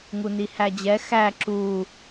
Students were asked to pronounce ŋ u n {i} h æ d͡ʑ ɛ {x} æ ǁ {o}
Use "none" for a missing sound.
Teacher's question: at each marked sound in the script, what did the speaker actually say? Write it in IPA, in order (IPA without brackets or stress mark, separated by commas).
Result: i, x, u